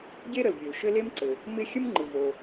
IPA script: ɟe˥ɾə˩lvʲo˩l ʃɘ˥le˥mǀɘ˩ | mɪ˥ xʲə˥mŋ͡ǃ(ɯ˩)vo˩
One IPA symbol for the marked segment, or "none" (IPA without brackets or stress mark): ɯ˩